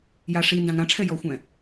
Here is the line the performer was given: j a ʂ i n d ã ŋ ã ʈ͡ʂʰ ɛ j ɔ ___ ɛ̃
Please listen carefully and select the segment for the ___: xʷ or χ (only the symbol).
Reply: xʷ